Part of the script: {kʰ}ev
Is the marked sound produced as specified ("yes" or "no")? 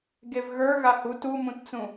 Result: no